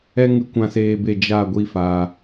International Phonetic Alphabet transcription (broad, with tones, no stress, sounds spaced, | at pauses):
ɛ˦ ŋ ɨ˧ kʷ ã˨ s eː˨ b e˨ d͡ʒ a˦˨ ɡʷ i˧ f aː˨